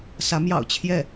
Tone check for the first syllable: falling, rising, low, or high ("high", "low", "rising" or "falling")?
rising